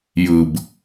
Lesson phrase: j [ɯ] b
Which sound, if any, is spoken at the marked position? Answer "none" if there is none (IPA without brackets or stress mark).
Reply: ɯ